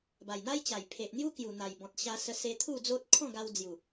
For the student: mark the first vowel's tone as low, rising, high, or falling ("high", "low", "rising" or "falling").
low